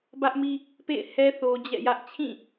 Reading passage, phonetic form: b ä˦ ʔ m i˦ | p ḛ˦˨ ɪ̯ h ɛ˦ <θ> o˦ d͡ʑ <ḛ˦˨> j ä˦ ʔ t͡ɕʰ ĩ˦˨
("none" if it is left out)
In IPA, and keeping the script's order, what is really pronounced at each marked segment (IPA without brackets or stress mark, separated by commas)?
θ, ɛ̰˦˨